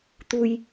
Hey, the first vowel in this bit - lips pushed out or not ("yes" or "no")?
yes